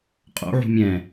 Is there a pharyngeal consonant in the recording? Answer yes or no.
yes